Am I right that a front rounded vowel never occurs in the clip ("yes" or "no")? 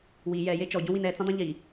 yes